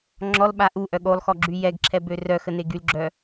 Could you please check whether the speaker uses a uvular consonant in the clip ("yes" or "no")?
no